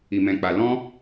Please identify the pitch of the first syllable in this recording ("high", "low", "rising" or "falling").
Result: low